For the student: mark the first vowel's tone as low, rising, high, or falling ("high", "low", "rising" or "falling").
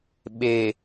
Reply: low